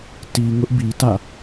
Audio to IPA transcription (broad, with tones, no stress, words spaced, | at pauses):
ti˨ ŋʊ˦ʔbi˨tä̰˦˨